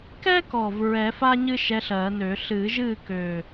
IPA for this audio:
kɛ˥kɔ˨˩v ɹɛ˨˩˦fa˥ ɲɨ˥ʃɛ˧˥ɬɜː˨˩˦nø˨˩˦ ɬɨː˨˩˦ʒɨː˥˨kø˨˩

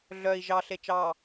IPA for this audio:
ɮœi̯ ʒɑɬe t͡ʃɑ

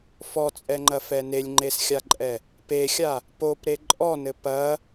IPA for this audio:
fɔt͡sʼɛŋ͡ǃɐfɛ nelʲŋ͡ǃesxʲaǃʼɛ | pexʲa | popɾe ǃʼɔnɘ pɐ

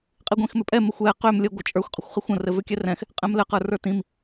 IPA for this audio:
qʼiɡʷĩxmʏpʼɛ mɘxʷɛ qʏm lʲə ɡʷət͡ʃʼə˞xʷ qʼʏxʷχəxʷə̃ rɘvʏkʲɛrɛ̃x | qʼɛ̃mlɘq ə˞rə˞tĩm

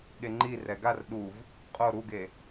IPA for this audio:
ɠeŋ͡ǃi rɛɡar ɗuv | qʼo ɾuɡe

